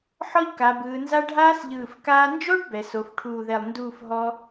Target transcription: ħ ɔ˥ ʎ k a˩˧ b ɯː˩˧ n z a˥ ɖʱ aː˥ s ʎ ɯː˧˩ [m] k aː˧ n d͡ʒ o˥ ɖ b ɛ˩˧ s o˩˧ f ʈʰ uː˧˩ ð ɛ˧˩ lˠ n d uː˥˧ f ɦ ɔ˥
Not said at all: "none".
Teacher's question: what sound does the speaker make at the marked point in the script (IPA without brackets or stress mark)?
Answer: f